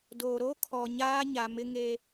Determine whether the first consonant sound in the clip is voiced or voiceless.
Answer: voiced